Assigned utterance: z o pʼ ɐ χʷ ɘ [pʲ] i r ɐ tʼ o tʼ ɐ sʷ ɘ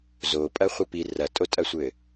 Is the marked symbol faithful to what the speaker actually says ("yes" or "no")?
no